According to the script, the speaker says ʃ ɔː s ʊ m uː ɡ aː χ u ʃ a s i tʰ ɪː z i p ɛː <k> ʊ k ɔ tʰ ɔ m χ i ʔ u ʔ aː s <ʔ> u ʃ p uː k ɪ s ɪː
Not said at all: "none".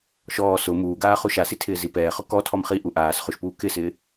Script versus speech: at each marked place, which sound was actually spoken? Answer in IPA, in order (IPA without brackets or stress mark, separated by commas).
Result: χ, χ